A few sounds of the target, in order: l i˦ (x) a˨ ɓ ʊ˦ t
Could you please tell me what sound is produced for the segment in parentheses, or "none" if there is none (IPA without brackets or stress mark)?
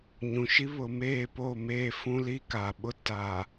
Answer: k